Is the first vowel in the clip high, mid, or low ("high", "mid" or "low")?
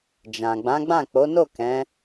low